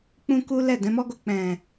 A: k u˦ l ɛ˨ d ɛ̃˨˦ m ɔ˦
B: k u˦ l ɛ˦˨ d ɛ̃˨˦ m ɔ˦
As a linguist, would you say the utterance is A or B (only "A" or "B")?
B